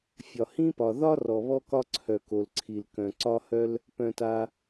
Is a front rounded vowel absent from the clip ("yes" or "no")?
no